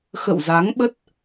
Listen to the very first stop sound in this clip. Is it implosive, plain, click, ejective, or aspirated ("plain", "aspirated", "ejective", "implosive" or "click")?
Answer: implosive